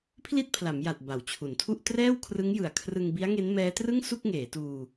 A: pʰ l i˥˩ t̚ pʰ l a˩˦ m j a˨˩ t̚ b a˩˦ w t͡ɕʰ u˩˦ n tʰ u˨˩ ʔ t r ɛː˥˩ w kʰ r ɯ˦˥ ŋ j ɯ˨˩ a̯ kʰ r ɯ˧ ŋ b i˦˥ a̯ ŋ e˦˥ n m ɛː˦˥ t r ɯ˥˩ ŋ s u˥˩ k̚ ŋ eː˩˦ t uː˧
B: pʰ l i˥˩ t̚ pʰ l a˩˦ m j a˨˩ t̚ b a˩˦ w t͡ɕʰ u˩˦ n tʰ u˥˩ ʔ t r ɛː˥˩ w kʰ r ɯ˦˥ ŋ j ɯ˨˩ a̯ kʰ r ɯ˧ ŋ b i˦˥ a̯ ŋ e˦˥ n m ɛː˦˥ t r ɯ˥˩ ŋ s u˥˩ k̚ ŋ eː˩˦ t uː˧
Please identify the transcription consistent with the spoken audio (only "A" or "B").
B